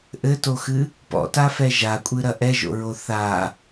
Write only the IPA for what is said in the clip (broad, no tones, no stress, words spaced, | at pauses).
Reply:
ʔɘtoxɨ | pɔ̰tafɛ ʒakʷʼɨɾɐ ʔɛʒo̰ɹo θa